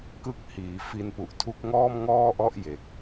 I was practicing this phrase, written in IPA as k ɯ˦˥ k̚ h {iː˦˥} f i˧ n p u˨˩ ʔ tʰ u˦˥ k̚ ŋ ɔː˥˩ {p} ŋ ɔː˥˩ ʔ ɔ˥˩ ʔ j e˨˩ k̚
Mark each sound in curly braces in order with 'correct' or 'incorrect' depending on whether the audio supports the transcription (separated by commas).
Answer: incorrect, incorrect